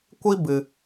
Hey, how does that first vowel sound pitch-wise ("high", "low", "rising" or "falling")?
high